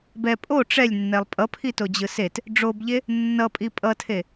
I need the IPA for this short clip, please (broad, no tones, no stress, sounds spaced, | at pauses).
b ɛ pʼ o ʈ͡ʂ ɛ lʲ nː ɛ lˠ pʼ ʌ pʰ i t o d͡ʑ ɯ s e t | ɖ͡ʐ o b ʎ e | nː ʌ pʼ i pʼ ʌ tʰ e